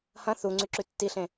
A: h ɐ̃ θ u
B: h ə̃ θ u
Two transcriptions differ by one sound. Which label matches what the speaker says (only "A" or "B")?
A